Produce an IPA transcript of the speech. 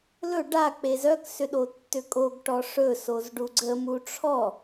l ɵ ɖ a k͡p e z œ k s ʏ ɗ o tː ʏ kʼ o ɡ ʈ ɔ ʂ ɵ s o z ɖ u ɡ͡ǀ ə m u ʈ͡ʂʰ ɔ

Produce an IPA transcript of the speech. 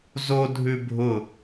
z o dʱ ʉ bʱ ʊ

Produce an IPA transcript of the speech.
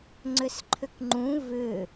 ŋ͡ǀ ʏ s ǃʰ ʏ k ŋ͡ǃ ũ v ʏ

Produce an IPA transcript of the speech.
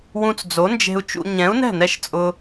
w ũ˧ t͡s d͡z o˨˦ n d͡ʒ e̤˧ u̯ t͡ʃ ṵ˧ ɲ ɛ̃˨˦ u̯ n ɛ̤˦˨ n ɛ˦ ʃ t͡sʼ ʊ˦

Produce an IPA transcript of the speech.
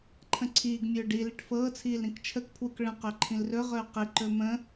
ǃʰ ə̃ ǀʰ iː ɡ mʲ ɵː ɖ i l i ʈ f ɤː t͡sʰ iː l ɾ ĩ k t͡ʃʰ ə k pʰ w u k ɭ ə̃ q ɵ ǃʰ ĩ l r ɵ ʁ ɵː q i ǃ ɵ m ə̃

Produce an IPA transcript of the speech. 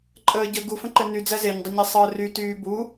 ǃʼ əː ɟ ə ɡ u f ə̃ ǃ ɘ n y d͡z æ z e ɲ dˤ ə ɲ e sˤ əː r y t yː b u

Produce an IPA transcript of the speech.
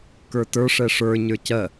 k ə˞ t ə˞ ʂ ɛ ʂ ə˞ ɲ ə˞ c ɜ

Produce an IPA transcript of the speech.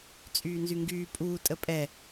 t͡sʼ yː n z y ŋ ɡ yː pʼ uː tʼ ə pʼ ɛ

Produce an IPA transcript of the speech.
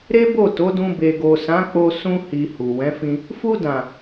ɾ e˦ b o˦˨ t o˨˦ d ũ˧ b e˨ ɡ o˨ s ã˨˦ k͡p o˧ s ũ˧ h i˨ h u˨ w ɛ̃˨˦ f ĩ˧ | f u˧ d ã˨

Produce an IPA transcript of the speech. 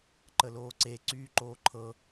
ǃ ə l oː ǀ e ǀ yː ǃ oː ǃʰ ɤ

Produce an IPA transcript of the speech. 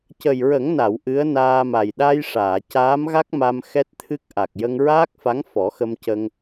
c ə˨˩ j ɹ ə˨˩˦ ŋ n a˨˩˨ w ʔ ɨ˧˥ ə̯ n aː˧ m a˨˩ j ɗ a˧ j ʂ aː˨˩˨ c aː˧˥ m ɣ a˦˥ k̚ m a˧ m x ɛ˦˥ t̚ t̪ʰ ɨ˦˥ k̚ ʔ a˨˩ k̚ j ə˧ ŋ ɹ aː˦˥ k̚ f a˧˥ ŋ f ɔ˨˩˦ x ə˧ m c ə˧ ŋ

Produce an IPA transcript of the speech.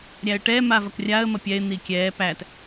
ɾʲ æ ə̯ ʈ ɛː m a v ɐ k rʲ a ə̯ m ɐ pʲ ɛ ɪ̯ n̪ i kʲ ɛː p æ t

